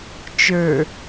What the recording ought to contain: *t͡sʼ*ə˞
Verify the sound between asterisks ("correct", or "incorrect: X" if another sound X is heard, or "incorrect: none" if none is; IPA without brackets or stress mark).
incorrect: t͡ʃ